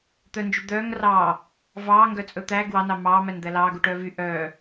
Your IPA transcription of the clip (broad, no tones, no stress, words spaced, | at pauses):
t̪œnd͡ʒy d̪œːŋ rɑː | vɑːŋɡœt͡sʼɵ t̪æ ɡwɑnɑ mɑːmænd̪æ lɑːɡuʈœː vy ʔœː